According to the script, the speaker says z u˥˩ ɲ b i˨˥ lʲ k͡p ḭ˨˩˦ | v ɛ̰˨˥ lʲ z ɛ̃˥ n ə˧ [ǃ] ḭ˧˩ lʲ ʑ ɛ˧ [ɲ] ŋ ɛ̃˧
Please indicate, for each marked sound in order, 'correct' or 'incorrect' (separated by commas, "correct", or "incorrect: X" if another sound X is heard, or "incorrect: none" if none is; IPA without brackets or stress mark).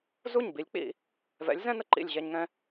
correct, correct